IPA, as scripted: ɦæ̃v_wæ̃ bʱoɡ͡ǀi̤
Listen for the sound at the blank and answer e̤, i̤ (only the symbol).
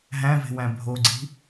e̤